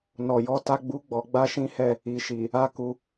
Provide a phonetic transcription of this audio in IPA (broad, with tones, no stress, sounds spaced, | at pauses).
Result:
n ɔ˨ j ɔ˨˦ t a˦ ɡ͡b u˦ ɡ͡b ɔ˧ ɡ͡b a˦ ʃ ĩ˦ h ɛ˦˨ | i˨ ʃ i˨ | a˦ k u˧